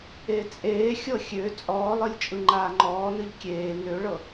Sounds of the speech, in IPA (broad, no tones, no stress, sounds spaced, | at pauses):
e t͡sʼ eː xʲ ɤ xʲ ø t͡sʼ ɔː lˠ ɯ lʲ t͡ʃʼ ɯ ŋ͡ǃ aː ŋ͡ǃ ɔː n ɯ ʎ kʲ eː n ø ɭ ɤ